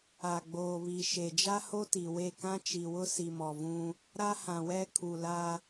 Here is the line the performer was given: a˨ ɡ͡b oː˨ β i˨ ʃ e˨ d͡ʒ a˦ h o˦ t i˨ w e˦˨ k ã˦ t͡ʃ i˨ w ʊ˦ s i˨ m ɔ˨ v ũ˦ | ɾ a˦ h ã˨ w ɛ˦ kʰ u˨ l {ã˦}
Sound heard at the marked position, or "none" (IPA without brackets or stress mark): a˦